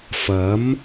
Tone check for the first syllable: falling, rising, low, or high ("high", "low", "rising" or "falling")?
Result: rising